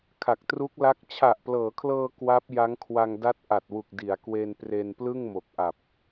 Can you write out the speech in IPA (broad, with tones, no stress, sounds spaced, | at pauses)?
kʰ a˨˩ k̚ t r u˦˥ k̚ l a˦˥ k̚ t͡ɕʰ a˨˩ ʔ p l ɤː˩˦ kʰ l ɤː˧ k w a˦˥ p̚ j a˦˥ ŋ kʰ w a˧ ŋ d a˦˥ t̚ ʔ a˨˩ t̚ w u˨˩ k̚ d i˩˦ a̯ k w e˧ n p r e˧ n p l ɯ˥˩ ŋ m o˨˩ k̚ ʔ a˨˩ p̚